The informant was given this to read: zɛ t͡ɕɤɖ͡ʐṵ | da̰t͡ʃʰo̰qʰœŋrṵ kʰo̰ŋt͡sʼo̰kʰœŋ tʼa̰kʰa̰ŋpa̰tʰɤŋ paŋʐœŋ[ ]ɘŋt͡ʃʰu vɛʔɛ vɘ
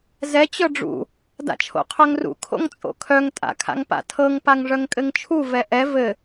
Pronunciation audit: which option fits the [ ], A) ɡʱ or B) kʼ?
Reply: B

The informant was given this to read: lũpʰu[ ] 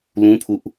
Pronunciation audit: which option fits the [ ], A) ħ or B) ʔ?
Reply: B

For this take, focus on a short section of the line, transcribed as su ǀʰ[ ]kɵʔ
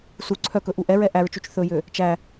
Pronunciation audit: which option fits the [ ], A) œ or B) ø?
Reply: A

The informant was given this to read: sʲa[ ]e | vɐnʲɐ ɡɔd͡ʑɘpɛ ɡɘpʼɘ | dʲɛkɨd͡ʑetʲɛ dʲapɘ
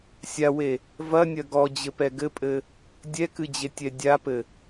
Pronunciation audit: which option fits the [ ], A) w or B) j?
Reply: A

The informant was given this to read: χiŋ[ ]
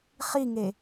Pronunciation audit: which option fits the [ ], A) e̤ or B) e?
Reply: B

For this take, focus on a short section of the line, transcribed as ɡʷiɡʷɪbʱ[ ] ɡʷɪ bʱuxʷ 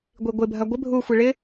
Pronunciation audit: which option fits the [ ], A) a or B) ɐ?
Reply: B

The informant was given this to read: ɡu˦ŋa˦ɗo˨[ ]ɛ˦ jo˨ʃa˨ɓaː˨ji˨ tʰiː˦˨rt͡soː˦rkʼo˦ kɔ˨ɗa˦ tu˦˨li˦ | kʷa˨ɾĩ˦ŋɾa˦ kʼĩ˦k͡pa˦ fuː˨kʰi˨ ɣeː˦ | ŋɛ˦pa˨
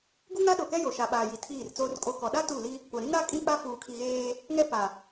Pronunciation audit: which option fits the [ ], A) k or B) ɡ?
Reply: A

